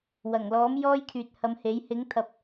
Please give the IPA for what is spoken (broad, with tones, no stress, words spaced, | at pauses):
wɐ˨˩ŋlɔː˨˥m jɔː˥jkʰyː˨t̚hɐ˨˧mhe˨˥j hɪ˨˥ŋt̪ʰɐ˨˥p̚